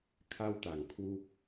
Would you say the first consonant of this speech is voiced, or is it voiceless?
voiceless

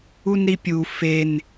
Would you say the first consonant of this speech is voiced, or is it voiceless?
voiced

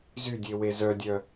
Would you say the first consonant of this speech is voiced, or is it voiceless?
voiced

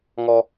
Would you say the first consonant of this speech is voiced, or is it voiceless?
voiced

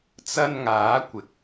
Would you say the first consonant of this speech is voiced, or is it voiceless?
voiceless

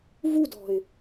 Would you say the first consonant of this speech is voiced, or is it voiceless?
voiced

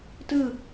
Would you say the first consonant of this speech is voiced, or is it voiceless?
voiceless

